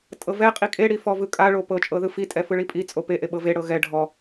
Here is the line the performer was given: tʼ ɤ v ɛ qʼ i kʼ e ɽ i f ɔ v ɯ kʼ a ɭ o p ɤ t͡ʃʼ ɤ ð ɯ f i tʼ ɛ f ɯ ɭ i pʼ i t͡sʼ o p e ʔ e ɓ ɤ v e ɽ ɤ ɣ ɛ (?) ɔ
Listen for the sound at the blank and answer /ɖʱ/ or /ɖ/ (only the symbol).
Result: ɖʱ